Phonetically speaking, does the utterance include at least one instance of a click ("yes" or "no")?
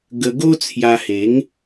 no